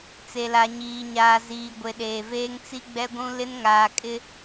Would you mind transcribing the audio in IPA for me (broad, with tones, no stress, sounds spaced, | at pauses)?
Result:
t͡s e˨ l a˨ ɲ iː˨ ɲ aː˨ z iː˨ ɡʷ e˨ ɗ eː˨ v eː˦ ŋ t͡s i˦ ɡ͡b ɛ˦ ɡʷ ũ˦ l ɪ˦ n ŋ aː˨ kʼ ɪ˦